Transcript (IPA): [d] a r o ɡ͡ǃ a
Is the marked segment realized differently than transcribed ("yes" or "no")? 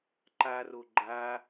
yes